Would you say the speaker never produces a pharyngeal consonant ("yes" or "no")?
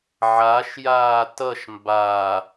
no